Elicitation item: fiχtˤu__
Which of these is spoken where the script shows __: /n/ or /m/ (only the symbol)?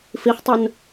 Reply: n